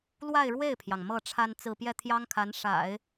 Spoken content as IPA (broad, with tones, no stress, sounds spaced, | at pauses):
l w a˥˧ ɪ̯ ɻ w e˥˩ ɪ̯ pʰ j ɑ˩ ŋ m ɤ˥˩ ʈ͡ʂʰ a˥ n t͡s ɹ̩˥˧ p j ɛ˥˩ t̪ʰ j ɑ˥ ŋ kʰ a˧˥ n ʂ a̰˨˩˦ ɪ̯